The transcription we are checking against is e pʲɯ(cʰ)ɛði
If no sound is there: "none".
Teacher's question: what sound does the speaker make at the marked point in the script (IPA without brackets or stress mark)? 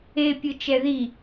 t͡ʃ